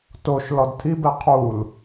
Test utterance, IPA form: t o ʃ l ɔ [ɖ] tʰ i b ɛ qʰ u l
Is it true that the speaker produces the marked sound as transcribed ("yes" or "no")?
no